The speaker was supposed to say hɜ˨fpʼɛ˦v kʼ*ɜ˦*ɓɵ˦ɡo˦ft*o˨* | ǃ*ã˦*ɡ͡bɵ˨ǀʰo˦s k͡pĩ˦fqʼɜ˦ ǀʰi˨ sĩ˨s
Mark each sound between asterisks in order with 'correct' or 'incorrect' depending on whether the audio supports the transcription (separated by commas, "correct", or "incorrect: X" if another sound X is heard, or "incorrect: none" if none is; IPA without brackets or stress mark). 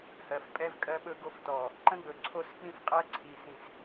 correct, incorrect: ɔ˨, incorrect: ə̃˦